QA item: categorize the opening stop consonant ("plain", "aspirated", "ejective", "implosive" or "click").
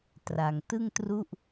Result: plain